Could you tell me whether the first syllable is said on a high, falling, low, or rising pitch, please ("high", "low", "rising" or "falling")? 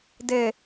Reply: low